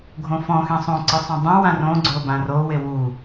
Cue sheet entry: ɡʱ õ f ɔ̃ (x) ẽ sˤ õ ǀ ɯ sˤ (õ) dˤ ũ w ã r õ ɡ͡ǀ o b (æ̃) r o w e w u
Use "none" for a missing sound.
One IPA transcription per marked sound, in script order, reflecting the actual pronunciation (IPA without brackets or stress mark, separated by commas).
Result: x, ũ, ã